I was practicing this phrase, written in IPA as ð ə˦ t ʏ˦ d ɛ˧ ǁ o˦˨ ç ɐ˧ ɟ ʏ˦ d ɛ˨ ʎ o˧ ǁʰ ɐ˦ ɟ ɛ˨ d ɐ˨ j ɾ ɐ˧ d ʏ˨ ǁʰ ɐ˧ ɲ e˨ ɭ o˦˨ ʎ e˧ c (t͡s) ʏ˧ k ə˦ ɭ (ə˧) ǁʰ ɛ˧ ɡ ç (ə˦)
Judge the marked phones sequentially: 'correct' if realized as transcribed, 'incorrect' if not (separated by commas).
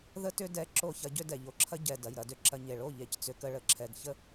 correct, correct, correct